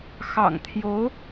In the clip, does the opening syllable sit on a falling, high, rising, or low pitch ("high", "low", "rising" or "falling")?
low